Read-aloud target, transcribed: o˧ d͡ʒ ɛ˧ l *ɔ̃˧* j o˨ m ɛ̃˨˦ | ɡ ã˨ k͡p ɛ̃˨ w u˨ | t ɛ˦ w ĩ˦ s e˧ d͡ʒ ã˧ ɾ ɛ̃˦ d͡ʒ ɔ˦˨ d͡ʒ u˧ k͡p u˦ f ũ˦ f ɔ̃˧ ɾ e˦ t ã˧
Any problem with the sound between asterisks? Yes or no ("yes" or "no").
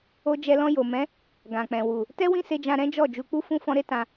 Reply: no